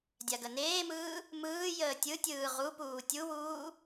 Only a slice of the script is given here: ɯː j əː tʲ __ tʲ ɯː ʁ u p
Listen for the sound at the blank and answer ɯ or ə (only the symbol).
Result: ɯ